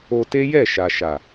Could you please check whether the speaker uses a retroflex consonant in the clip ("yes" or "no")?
no